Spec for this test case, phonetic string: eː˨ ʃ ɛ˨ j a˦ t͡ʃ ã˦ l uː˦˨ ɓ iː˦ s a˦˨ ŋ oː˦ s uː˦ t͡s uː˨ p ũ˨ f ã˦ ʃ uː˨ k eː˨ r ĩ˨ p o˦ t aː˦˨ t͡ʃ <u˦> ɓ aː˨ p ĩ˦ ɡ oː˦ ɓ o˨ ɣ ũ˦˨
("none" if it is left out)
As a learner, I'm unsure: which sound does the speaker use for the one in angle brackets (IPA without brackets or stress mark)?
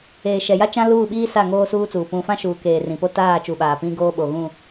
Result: u˨